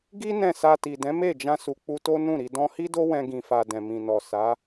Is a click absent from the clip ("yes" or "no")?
yes